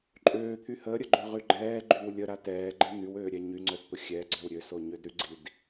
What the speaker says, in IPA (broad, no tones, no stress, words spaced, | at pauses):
ǃʼøːt̪ʰy həɾʲəɡ͡ǃøʁy ɡ͡ǃɛːɡ͡ǃyw lʲəɾa tɛːɡ͡ǃɛ n̪ywøːɾʲɛ ɲyŋ͡ǀœdt̪ʊ xʲɛɡ͡ǀœw ɾʲøsoɲød ɾyɡ͡ǀid